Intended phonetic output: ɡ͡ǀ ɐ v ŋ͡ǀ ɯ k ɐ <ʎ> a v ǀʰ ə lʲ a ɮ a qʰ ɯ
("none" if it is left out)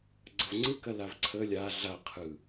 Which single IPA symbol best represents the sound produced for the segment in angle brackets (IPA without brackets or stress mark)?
l